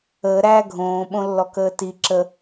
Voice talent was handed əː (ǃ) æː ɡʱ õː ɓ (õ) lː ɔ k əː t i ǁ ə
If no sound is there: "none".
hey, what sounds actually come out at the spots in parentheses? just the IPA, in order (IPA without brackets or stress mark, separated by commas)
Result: ɾ, õ